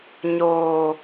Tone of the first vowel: low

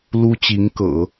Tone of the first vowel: high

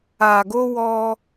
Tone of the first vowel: low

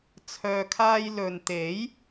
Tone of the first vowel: low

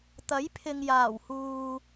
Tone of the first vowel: rising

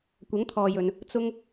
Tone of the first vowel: rising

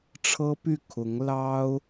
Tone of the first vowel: high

